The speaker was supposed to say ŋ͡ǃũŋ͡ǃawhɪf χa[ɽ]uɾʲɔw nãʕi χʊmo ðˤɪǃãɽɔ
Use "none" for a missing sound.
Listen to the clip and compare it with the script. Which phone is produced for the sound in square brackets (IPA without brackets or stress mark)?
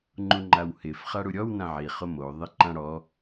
ɽ